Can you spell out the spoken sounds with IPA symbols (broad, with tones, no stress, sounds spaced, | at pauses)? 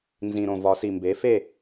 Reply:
n z ĩ˨˩ ɾ õ˨˩ v ɒ˨˩˦ s i˨˩ m b e˩˥ f e˥˨